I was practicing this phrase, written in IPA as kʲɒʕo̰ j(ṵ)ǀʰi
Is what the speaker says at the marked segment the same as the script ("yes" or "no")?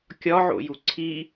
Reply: no